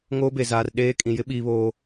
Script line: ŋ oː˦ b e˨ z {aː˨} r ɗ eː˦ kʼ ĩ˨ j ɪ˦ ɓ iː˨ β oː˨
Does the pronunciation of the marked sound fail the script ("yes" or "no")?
no